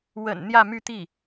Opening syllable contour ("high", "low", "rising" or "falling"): low